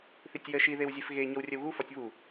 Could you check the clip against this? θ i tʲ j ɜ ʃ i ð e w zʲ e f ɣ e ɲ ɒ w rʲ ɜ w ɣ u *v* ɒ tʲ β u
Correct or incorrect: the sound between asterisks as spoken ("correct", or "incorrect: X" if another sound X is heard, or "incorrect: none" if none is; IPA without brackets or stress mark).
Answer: incorrect: f